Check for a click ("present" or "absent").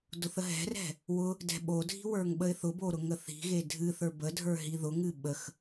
absent